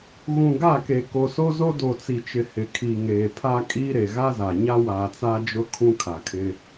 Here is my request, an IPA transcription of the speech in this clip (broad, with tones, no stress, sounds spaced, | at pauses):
ɣ ũ˨ ɡ a˦˨ k e˨ k o˨ s o˦ z o˦ d o˨ t͡s i˨ t͡ʃ ɪ˨ h ɪ˨ kʰ i˨ ŋ eː˨ pʰ a˦ kʼ iː˦ ɾ e˨ ɣ a˦ z a˨ ɲ a˦ w aː˨ t͡s a˦ d͡ʒ ʊ˦ kʰ ũ˦ kʰ a˨ kʰ ɪ˦